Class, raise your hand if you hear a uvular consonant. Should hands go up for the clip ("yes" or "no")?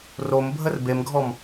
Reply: no